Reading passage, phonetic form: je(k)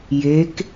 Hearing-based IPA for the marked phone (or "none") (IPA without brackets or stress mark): k